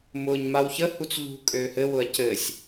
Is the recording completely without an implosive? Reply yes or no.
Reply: yes